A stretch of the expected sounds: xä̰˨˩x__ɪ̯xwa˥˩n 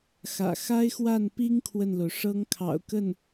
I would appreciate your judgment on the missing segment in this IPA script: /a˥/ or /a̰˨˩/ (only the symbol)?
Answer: a˥